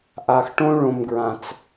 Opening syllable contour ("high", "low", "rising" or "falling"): low